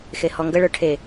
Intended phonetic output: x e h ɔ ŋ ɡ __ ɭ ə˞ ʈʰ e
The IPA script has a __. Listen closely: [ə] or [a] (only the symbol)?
ə